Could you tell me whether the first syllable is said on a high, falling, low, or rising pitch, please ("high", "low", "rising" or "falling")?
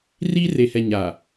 high